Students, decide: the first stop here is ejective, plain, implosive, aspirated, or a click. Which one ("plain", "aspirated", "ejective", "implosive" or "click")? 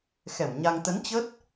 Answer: plain